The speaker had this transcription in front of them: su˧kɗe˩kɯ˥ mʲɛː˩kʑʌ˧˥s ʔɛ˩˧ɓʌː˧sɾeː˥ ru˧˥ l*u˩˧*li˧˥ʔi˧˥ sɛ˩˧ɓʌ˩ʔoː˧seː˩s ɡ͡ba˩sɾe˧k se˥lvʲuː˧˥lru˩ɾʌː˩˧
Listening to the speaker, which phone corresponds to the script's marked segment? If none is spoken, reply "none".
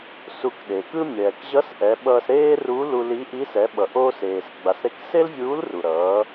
u˧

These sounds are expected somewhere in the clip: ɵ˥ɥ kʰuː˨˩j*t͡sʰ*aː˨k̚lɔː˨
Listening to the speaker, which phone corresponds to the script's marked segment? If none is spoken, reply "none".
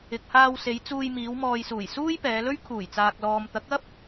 t͡s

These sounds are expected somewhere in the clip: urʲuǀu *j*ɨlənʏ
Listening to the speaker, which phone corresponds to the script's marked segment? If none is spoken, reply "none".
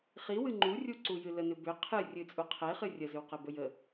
j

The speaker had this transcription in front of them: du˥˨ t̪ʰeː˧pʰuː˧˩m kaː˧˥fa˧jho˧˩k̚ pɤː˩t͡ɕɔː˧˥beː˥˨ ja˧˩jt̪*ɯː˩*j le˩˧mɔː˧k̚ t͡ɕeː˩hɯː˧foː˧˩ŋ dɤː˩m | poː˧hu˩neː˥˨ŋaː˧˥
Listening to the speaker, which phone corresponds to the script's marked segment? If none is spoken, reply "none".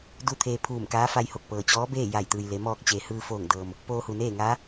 ɯː˩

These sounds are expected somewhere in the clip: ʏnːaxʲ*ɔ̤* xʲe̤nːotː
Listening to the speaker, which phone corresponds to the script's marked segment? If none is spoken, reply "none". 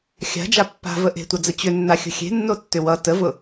ə̤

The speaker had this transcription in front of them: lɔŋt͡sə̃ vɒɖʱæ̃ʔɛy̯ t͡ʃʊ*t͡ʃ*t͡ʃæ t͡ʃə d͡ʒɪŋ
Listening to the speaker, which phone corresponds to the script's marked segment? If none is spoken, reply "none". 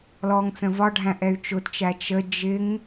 t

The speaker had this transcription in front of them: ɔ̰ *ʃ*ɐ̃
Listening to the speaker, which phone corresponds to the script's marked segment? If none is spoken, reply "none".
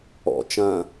t͡ʃ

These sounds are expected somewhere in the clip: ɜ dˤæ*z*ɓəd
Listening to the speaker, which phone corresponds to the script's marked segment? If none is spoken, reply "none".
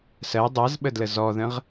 z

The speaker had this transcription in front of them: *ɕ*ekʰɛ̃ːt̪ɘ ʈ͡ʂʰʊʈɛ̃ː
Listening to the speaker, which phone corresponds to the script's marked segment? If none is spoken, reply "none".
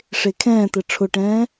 ʂ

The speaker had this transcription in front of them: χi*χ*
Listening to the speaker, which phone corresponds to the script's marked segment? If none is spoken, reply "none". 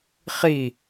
none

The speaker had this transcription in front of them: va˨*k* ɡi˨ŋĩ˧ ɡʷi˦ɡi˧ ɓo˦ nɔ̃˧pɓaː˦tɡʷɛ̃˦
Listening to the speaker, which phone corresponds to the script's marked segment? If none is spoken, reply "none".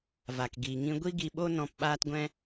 k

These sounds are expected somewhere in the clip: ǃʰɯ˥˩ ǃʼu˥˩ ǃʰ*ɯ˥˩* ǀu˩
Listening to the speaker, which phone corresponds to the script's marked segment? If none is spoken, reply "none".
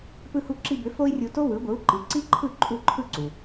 ɯ˥˩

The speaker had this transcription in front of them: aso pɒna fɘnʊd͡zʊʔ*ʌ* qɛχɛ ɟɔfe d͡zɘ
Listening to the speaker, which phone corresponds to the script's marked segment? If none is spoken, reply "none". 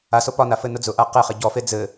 a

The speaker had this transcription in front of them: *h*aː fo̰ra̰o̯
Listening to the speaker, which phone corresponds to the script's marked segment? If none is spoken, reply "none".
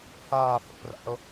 h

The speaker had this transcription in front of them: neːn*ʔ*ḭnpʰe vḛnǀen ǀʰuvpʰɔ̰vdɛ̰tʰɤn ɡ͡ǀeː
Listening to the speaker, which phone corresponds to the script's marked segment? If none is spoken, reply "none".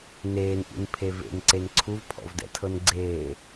ʔ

